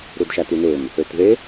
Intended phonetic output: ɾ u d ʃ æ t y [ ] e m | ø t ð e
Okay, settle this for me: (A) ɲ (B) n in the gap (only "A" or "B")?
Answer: B